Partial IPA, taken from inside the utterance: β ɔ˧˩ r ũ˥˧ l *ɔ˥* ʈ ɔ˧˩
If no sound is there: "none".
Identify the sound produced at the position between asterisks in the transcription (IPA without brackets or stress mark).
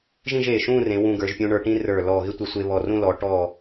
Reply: ɔ˩˧